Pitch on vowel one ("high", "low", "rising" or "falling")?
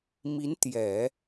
rising